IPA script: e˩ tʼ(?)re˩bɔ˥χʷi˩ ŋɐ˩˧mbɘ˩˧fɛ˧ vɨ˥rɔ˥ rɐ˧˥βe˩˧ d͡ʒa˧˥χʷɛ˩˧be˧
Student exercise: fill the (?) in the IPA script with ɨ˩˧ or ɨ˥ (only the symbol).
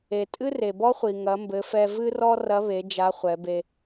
ɨ˥